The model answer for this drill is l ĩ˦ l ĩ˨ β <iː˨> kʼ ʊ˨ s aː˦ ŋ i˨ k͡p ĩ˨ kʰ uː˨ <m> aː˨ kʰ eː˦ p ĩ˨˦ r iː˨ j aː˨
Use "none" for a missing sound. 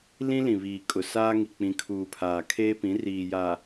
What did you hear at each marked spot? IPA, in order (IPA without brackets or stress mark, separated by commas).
iː˨, pʰ